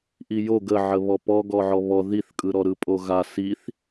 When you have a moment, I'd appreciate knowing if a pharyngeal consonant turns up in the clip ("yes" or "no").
yes